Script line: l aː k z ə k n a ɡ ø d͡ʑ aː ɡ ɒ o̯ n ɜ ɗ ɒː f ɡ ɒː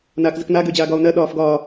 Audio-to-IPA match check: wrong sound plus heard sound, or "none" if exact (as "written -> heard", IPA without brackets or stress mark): l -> n